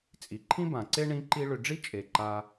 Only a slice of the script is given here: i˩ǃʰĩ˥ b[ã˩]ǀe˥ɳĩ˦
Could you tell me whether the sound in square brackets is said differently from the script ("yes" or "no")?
no